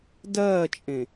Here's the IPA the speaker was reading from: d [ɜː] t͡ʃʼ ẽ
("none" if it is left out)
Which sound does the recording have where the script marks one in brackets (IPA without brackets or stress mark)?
ɜː